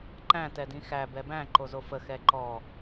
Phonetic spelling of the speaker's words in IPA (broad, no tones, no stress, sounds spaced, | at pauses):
ǃ æ̃ t ɛ d ĩ x æ b ɛ b æ̃ ǃ o z o f ə x ɛ ǃ ɔ